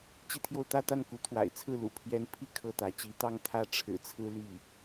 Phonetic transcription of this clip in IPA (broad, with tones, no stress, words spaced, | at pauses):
t͡ɕi˥˧t̪ʰjo˥˧ʊ̯ t̪ä˥˧t̪a˥˩nku˧˥ t̪ʰwa̰˨˩ɪ̯ t͡sʰɹ̩˥˩lṵ˨˩ pʰjɛ˥n pʰi˥˧ kʰɤ˥˩t̪ä˧˥ t͡ɕi˧˥ t̪ɑ˥˧ŋ t̪ʰä˥˩ʈ͡ʂʰɻ̩˨˩t͡sʰɹ̩˥ ly˥˩